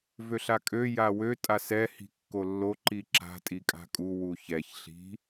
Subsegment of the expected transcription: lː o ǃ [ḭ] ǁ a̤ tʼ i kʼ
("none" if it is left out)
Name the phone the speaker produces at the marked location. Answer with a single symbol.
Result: i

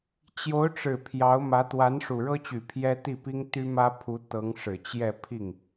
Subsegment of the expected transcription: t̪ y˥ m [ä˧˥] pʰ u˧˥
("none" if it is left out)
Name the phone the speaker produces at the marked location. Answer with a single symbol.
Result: ä˥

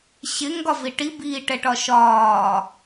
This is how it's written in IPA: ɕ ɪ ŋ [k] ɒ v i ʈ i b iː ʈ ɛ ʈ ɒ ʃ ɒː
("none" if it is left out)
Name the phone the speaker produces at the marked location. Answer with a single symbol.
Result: ɡ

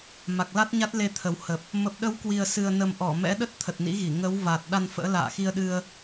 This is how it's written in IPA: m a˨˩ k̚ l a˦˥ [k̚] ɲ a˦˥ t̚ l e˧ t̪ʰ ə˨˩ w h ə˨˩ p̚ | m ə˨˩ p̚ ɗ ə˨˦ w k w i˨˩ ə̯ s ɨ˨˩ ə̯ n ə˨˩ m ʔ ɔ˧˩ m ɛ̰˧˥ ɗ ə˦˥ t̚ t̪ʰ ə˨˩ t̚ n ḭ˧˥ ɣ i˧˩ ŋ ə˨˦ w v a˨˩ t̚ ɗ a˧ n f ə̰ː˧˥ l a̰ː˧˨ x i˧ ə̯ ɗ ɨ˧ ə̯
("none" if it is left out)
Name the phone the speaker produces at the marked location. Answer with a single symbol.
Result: t̚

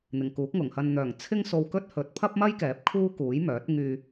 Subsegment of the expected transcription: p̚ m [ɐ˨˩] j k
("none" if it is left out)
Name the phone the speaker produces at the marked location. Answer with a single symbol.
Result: ɐ˥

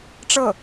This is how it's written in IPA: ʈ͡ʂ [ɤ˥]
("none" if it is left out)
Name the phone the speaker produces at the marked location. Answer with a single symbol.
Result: ɤ˥˩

